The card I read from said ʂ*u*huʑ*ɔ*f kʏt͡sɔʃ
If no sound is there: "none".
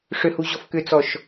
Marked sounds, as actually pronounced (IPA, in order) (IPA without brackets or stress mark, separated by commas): ʏ, ɔ